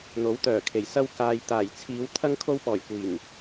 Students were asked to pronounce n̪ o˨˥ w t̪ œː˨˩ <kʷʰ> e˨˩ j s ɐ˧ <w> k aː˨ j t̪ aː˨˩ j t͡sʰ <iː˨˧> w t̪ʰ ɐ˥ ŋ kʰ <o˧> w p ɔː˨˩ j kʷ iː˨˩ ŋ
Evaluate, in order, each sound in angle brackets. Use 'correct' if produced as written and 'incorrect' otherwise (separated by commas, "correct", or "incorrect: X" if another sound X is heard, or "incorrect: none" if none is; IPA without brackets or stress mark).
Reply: incorrect: kʰ, correct, correct, correct